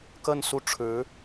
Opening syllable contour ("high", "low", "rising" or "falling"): falling